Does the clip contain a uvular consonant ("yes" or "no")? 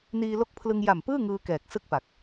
no